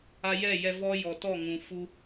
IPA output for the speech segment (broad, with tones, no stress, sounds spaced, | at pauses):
a˧ j ɛ˦˨ j ɛ˧ v ɔ˦ j ɔ˨ t ɔ˦˨ ŋ ũ˨ f u˧